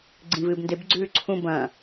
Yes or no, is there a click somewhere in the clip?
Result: yes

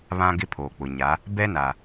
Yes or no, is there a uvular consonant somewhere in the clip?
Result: no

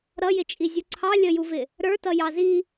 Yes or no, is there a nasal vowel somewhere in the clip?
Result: no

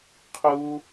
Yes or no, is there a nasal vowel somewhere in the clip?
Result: no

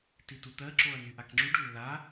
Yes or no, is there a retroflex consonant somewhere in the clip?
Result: yes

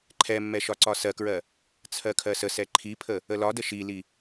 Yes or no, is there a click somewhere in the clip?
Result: yes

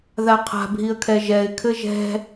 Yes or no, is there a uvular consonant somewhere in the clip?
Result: yes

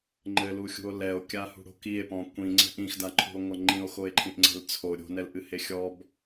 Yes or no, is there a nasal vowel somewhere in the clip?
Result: yes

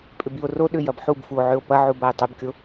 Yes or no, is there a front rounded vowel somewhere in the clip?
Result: yes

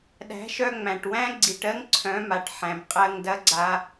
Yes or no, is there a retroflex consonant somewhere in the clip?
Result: yes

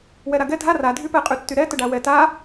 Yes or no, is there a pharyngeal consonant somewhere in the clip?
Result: no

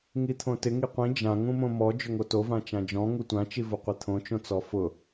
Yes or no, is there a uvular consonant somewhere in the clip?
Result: yes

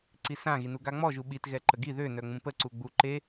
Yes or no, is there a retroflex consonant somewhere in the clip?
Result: no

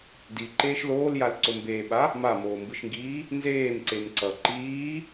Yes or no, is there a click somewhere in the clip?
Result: yes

